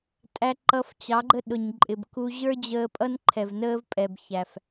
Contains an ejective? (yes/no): yes